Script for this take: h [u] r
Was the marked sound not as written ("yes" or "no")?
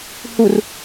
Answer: no